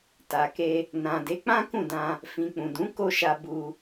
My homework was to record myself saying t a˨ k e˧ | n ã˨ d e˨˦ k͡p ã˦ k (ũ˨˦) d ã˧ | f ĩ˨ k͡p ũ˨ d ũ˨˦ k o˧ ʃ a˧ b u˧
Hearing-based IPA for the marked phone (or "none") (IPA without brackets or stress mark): ũ˦˨